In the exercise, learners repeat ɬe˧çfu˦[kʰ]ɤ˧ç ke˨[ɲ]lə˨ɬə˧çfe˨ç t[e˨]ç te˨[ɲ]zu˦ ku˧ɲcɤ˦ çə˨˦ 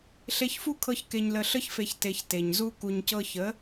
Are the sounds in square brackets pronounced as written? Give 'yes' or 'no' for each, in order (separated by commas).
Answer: yes, yes, yes, yes